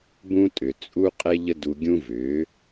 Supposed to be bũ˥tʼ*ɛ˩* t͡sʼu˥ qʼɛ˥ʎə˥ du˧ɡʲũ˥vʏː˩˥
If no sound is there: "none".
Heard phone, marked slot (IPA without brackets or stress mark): ʏ˩